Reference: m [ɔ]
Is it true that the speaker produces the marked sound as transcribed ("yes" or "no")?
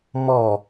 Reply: yes